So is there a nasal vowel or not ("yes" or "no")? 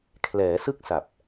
no